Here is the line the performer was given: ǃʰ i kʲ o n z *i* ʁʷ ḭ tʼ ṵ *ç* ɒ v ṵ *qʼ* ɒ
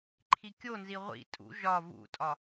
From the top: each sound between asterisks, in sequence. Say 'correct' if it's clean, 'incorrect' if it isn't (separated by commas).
correct, incorrect, incorrect